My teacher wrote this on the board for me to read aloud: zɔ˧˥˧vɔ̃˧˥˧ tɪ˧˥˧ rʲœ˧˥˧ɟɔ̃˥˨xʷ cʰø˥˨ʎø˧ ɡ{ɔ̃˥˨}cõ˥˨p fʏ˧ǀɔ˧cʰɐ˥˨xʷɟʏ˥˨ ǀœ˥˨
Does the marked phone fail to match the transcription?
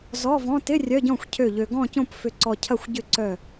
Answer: no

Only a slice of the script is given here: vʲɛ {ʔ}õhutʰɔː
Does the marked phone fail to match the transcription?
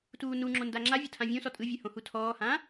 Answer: yes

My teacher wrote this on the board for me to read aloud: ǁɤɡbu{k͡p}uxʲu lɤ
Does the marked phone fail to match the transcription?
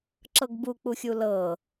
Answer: no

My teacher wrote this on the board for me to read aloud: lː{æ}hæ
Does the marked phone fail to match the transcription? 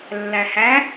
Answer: no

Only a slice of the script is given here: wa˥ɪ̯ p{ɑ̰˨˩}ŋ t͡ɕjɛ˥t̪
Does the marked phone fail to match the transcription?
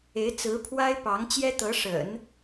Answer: yes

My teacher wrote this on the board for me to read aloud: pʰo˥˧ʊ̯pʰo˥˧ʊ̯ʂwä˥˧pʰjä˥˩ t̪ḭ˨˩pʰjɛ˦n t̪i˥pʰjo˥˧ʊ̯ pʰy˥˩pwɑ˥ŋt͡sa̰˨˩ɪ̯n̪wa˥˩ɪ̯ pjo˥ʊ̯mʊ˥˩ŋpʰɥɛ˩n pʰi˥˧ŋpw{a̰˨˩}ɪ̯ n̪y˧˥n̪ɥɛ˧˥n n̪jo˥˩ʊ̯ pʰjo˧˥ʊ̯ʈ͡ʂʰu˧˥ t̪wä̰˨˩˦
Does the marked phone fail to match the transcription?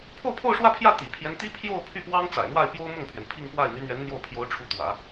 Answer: yes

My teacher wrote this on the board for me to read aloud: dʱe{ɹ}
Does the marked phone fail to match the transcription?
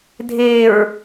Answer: no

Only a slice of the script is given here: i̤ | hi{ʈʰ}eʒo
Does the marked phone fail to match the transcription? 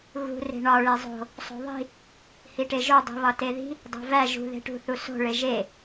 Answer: yes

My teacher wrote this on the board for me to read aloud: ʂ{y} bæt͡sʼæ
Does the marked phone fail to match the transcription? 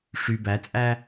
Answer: no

